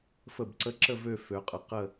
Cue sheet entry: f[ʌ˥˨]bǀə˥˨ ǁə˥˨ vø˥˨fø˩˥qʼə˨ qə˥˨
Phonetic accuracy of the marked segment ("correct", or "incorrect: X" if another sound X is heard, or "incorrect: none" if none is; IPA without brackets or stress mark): incorrect: ə˥˨